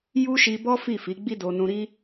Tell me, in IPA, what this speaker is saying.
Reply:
ju˦ʃi˧bɔ˦ fi˦˨fi˨˦ɡ͡bi˦do˧ nũ˧ɾi˦

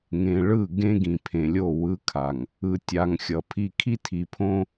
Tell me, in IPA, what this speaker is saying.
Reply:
ŋẽ˨ɭɯ˦˨ ɡẽ˦ɡĩ˨pʰẽ˨lʲo˦˨ wɯ˦kʰa˨ŋ | ɯ˨tʲa˨ŋ xʲʌ˨ pʰi˨kʰi˦tʰi˨pʰõ˦

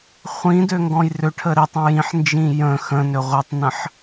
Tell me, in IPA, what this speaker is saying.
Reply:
χʷĩ døŋɡɔ̃jrøʈʰə ɾitˤ ə̃jĩħnd͡ʒĩ jə̃ xə̃ nøʁʷitˤnə̃ħ

